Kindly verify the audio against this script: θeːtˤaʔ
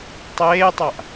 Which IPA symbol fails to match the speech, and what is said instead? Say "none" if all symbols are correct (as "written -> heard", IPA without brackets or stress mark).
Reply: θ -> tˤ